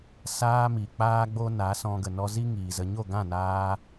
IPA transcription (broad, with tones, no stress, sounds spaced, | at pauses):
s aː˦ m i˨ k͡p aː˦ ɡ͡b o˦ n a˨˦ s ɔ̃˧ ɡ ə˨ n ɔ˧ z i˦ ŋ iː˨ z ə˧ ɲ o˦˨ ɡ ã˦˨ n aː˧